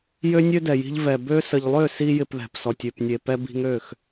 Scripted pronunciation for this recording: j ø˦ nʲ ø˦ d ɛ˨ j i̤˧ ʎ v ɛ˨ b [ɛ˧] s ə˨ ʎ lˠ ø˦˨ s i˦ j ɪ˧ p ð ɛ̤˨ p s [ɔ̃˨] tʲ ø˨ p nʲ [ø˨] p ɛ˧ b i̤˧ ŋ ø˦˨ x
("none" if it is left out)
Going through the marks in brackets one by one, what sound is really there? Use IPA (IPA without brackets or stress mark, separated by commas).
ø˧, ɔ˨, e˨